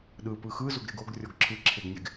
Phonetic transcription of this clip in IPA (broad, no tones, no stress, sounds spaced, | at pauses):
ɗ ɯ p ɯ x ɯ z o ɡ ɾ e ɡ o ɡ rʲ ɔ ɡ ǁʰ ɯ ǁʰ e ɡ nʲ e ɡ